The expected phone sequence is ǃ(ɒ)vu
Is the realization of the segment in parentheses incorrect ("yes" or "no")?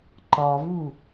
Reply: no